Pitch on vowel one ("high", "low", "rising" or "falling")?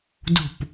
falling